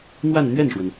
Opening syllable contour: falling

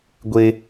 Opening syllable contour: high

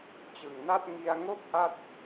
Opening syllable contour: low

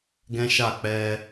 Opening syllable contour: high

